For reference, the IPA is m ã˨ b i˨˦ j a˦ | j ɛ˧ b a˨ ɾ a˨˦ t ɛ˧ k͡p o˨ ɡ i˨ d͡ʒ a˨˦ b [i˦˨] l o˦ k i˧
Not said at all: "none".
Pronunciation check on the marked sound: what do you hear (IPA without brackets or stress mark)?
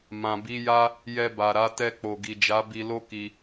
i˧